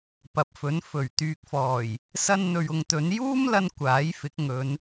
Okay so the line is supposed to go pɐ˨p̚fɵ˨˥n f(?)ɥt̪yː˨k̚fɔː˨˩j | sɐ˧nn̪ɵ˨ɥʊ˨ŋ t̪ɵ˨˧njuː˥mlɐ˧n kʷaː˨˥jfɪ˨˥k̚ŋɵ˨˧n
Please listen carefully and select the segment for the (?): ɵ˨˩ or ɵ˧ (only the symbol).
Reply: ɵ˨˩